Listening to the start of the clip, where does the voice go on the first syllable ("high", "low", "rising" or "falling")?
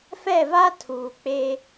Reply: falling